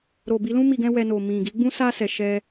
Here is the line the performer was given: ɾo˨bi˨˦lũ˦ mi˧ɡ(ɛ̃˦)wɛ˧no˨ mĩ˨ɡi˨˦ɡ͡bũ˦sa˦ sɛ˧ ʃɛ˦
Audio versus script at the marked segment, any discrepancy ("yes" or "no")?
no